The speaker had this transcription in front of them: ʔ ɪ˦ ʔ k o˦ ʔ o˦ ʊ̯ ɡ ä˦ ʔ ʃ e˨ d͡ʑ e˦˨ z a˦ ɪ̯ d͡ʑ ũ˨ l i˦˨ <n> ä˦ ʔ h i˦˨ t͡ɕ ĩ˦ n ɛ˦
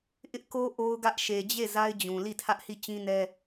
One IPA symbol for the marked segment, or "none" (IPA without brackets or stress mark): tʰ